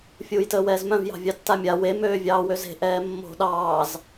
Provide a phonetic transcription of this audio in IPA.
fʲ uː j t əː w ɛː z m œ̃ v j ɑ̤ vʲ ɑ tː a mʲ a w e m øː vʲ ɑː w ø z e̤ ʔ ɛː mː o̤ ɗ ɑː z

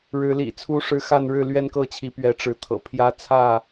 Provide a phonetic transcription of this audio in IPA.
ɻ ɻ̩˨˦ l ḭ˨˩ t͡sʰ u˦ ʂ ɻ̩˦ x a˥˨ n ɻ ɻ̩˥˨ l ɥ ɛ˦ n k ɤ˥˨ t͡ɕʰ i˨˦ p ɥ ɛ˨˦ ʈ͡ʂ ɻ̩˨˦ t̪ʰ ɤ̰˨˩ pʰ j ä˦ t͡sʰ ä˥˨

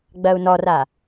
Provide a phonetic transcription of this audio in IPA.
ɡ͡b ɜ u̯ n ɔ r a

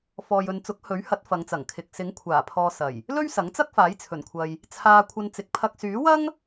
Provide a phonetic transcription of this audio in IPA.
f ɔː˨ j ɵ˨ n t͡s ʊ˨˥ k̚ h ɵ˨˥ ɥ h ɐ˨˥ t̚ f ɐ˨˧ ŋ t͡s ɐ˨˩ ŋ kʰ ɪ˨ k̚ s ɪ˨˥ ŋ kʷʰ aː˨˩ pʰ ɔː˨ s ɐ˨˩ j | l ɵ˥ ɥ s ɐ˨˥ ŋ t͡s ɐ˥ k̚ f aː˨˥ j t͡sʰ ɵ˨˩ n kʷʰ ɐ˨ j | t͡sʰ aː˧ kʷʰ ɐ˧ n t͡s ɪ˨˥ k̚ pʰ ɐ˧ k̚ s yː˨˥ w ɐ˥ ŋ

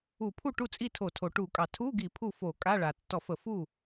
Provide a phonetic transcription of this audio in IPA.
u˧˩˧ pʰ u˥˩ ʈ u˥˩ t͡sʼ i˥˩ tʰ o˧˩˧ tʰ o˩ ʈ u˧˩˧ kʼ ɑ˩ tʰ u˧˥˧ ɡ i˧˩˧ pʰ u˥˩ f o˧˩˧ kʼ a˧˥˧ ɭ a˩ tː ɔ˧˩˧ f ə˧˩˧ f u˥˩

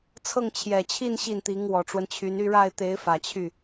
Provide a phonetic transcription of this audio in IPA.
t͡sʰ ɤ˥˩ ŋ t͡ɕʰ j ɛ˨˩ t͡ɕʰ i˥˧ n ɕ i˥˩ n t̪ i˧˥ ŋ w ɔ˨˩ ʈ͡ʂ w ə˦ n t͡ɕʰ y˧˥ n y˥˧ ɻ a˥˩ ɪ̯ t̪ e˧˥ ɪ̯ f ä˨˩ t͡ɕʰ y˥˩

